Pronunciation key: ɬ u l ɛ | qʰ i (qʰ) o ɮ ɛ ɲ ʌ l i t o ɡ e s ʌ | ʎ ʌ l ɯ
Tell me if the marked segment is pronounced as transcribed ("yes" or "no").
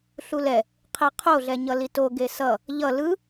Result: yes